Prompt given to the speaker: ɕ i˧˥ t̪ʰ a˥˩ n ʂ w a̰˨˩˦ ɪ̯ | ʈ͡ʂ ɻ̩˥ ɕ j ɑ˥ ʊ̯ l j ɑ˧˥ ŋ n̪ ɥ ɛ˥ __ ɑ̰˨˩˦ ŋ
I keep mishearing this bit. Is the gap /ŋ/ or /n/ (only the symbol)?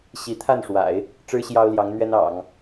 n